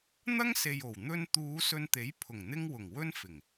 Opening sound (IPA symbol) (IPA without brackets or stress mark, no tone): n̪